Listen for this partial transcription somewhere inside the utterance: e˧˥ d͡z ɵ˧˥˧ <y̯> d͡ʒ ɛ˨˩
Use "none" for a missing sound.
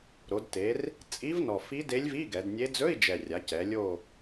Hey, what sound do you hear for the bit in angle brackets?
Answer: i̯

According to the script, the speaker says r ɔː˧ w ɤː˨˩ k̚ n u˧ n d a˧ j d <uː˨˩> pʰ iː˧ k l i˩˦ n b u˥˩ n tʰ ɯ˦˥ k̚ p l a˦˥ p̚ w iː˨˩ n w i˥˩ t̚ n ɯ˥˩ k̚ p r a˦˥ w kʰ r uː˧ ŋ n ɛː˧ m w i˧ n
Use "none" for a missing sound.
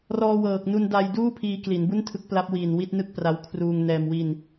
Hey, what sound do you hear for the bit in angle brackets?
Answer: uː˥˩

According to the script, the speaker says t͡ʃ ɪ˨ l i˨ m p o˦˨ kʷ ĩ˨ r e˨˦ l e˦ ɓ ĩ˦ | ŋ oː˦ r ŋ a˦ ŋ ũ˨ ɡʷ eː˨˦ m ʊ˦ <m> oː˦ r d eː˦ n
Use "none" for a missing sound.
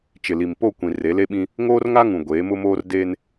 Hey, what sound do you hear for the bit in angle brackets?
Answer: m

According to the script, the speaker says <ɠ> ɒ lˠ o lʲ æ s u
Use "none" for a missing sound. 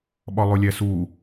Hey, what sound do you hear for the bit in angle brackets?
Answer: ɓ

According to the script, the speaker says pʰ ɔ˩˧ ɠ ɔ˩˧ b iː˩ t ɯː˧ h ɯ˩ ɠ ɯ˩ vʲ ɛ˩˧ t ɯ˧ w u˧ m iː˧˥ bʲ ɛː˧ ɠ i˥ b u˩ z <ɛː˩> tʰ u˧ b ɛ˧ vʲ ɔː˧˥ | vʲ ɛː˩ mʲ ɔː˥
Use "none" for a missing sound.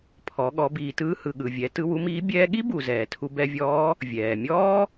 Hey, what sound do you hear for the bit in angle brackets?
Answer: ɛː˩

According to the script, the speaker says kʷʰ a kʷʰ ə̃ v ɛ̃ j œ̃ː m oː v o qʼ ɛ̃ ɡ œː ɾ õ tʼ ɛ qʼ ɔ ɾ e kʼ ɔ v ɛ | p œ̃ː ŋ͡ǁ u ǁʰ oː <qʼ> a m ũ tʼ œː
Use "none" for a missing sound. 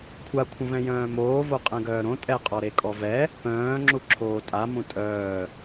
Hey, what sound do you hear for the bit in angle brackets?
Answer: tʼ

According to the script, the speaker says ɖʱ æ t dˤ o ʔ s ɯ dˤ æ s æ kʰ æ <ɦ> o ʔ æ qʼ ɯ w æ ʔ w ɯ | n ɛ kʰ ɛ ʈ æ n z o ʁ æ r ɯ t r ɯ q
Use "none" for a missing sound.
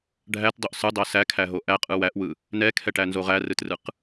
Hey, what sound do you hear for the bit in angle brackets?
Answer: ɦ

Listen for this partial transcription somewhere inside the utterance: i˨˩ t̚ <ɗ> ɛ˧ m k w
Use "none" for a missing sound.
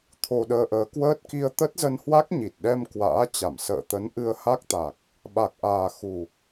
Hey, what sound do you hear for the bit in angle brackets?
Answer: ɗ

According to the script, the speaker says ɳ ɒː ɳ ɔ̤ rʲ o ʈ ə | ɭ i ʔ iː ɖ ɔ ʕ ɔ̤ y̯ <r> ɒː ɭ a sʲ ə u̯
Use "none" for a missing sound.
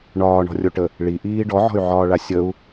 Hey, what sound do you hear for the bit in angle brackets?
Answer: ʕ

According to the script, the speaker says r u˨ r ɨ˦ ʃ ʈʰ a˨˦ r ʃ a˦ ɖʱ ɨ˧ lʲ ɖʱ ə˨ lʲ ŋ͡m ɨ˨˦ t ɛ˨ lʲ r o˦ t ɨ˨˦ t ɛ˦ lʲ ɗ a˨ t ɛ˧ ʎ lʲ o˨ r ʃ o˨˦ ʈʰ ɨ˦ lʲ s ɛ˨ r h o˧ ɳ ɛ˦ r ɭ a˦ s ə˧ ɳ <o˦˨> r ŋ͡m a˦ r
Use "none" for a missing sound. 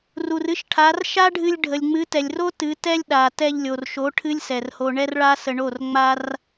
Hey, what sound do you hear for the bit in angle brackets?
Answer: o˦˨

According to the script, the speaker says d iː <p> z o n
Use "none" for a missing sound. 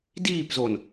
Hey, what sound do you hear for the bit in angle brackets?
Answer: p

